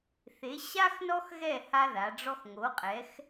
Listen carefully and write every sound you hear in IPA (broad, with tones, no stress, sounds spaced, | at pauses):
θ e˩˧ ɕ a˦ x n ɔ˦ x ɣ ɛ˥˨ h a˦ ð a˩˧ ɖ͡ʐ ɔ˦ x ŋ o˩˧ qʼ ɛ˩˧ x